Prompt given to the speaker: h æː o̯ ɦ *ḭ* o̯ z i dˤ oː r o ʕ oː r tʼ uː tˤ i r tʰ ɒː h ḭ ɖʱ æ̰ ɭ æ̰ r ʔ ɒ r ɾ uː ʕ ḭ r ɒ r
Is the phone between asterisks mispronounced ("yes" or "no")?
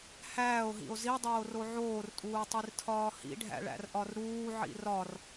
no